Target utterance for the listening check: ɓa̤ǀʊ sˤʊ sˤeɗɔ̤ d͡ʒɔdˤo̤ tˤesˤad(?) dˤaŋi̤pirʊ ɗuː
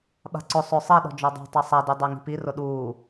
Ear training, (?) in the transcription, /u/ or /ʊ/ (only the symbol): u